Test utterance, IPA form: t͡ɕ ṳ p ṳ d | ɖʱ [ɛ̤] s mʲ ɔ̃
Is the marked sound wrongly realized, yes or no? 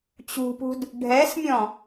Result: yes